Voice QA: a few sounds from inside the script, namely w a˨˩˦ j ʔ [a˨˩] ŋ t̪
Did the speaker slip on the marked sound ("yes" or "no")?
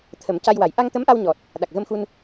yes